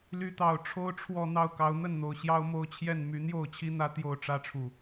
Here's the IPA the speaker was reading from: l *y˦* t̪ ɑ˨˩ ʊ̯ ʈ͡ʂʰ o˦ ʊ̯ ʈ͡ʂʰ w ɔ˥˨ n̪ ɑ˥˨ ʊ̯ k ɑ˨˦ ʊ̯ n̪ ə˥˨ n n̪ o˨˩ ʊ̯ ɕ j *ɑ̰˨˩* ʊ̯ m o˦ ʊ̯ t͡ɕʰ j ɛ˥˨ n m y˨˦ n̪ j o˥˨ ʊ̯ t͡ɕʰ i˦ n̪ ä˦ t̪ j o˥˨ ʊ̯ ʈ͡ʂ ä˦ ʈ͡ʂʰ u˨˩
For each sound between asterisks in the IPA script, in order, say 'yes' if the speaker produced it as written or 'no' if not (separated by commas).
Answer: no, no